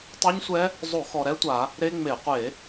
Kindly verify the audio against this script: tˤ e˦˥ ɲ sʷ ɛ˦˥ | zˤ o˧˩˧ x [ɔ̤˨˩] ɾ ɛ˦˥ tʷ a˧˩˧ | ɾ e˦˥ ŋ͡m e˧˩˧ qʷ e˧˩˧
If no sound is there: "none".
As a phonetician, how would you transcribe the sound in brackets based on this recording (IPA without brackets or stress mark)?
ɔ˨˩